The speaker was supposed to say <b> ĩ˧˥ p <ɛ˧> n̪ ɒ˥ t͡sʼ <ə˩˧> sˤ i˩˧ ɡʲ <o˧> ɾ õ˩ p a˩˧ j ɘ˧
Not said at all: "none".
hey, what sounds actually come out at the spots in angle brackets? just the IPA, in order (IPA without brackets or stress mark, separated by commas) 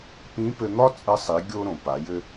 p, ɘ˧, ə˧, o˧